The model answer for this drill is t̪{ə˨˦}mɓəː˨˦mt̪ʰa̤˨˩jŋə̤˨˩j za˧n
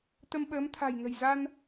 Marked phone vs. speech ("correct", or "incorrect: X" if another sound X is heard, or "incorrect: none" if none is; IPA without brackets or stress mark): incorrect: ə˧